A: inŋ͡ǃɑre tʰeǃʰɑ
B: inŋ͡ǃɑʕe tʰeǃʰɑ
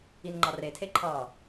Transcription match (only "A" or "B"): A